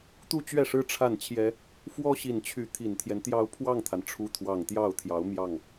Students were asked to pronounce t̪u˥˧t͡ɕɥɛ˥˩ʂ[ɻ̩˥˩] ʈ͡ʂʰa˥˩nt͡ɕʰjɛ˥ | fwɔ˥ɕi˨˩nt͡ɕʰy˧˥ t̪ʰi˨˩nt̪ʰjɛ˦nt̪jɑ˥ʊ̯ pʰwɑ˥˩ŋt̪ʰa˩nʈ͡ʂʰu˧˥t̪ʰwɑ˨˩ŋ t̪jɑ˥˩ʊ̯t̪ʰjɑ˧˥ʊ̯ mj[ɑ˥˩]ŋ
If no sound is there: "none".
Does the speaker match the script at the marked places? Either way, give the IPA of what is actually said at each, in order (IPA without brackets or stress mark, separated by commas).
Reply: ɻ̩˥, ɑ˥˩